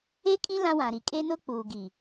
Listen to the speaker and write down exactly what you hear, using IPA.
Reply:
e˦ kʼĩ˦ lã˦wã˨ɾi˨ kʼe˦nʊ˦ k͡puː˨ɡi˨

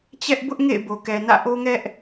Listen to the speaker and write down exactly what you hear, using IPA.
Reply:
t͡ɕɛ˦ʔ bʊ˦ʔ ŋḛ˦˨ɪ̯bo˨kɛ˨nä̰˦˨ ʔo˦ŋɛ˦ʔ

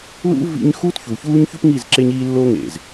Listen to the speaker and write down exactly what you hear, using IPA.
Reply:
lṵ˦ vḭ˦ɲ xuː˦tçu˨çuː˦ɲçu˦p ŋi˦˨z ǁe˦ɲiː˦lːo˦ ŋḛ˨z

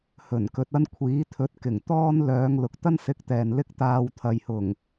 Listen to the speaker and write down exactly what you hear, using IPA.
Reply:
hɵ˨˩n kɵ˧t̚ɐ˥n kʷʰiː˨˥t̪ʰɵ˨˥t̚kɪ˨˩ŋ t̪ɔː˥nlœː˨˧ŋ lʊ˨k̚t̪ɐ˥nsɪ˨˥k̚ t̪ɛː˨nlɪ˥k̚t̪aː˧w t̪ʰɐ˨jhʊ˨˩ŋ

